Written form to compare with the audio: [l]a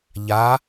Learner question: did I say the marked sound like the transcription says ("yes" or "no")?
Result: no